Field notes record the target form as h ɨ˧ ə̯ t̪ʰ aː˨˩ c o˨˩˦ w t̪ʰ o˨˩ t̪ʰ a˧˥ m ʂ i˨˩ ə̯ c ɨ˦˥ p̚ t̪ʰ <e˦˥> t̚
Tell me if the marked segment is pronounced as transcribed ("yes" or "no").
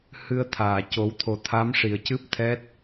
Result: no